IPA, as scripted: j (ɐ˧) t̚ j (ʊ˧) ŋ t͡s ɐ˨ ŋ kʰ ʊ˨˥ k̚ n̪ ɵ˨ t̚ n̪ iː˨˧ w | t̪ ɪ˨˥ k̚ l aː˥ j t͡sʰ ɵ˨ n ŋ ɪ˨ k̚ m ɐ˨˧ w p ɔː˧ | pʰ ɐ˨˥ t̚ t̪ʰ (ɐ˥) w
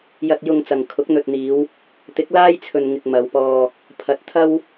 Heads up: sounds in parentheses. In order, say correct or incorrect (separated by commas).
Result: correct, correct, correct